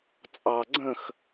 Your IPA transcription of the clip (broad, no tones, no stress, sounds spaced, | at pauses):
t͡sʼ ɑ ɡ͡ǀ ə̃ x